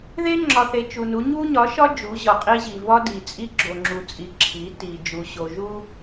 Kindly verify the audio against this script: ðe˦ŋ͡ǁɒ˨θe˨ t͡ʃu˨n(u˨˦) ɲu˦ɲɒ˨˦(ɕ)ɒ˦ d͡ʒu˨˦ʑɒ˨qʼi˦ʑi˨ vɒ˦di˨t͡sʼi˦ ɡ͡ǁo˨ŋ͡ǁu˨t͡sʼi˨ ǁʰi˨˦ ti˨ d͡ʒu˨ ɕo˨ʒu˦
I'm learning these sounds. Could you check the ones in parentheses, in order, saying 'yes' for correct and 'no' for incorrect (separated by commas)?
yes, no